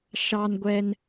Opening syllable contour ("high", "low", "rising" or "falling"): low